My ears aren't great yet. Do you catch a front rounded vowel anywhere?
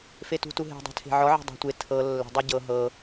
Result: no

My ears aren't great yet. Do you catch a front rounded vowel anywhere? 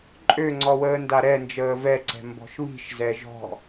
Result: yes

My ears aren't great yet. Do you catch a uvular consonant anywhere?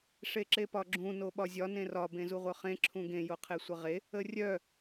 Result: yes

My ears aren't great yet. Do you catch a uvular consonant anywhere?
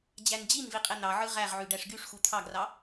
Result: yes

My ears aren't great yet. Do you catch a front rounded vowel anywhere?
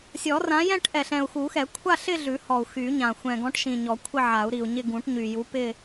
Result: yes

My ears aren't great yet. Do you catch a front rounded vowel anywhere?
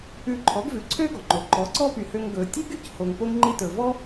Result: yes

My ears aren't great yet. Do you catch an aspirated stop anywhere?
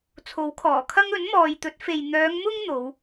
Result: yes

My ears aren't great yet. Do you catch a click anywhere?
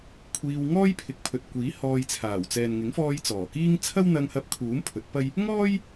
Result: no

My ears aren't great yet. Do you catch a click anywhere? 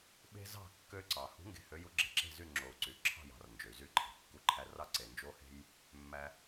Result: yes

